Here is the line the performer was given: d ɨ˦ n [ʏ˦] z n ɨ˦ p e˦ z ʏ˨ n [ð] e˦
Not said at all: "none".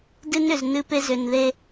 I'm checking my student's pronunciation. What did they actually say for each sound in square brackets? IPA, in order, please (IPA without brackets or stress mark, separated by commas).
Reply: ʏ˨, ð